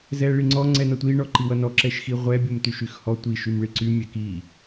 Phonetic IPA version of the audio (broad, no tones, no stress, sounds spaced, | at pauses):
z ɛ ɭ i ŋ͡ǀ ɔ ŋ͡ǀ ɛ n ʌ tʷ i ɳ ɔ ǃ i w ʌ n ɔ ǁ ɛ ʃ x i ʁʷ ɛ bʲ o m t y ʃ y x h ɔ tʷ i ʃ y m ɭ i ǀ y mʲ ɛ k i